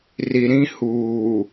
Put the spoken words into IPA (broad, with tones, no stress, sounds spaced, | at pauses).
r i˨ ɾ ĩ˦ h uː˨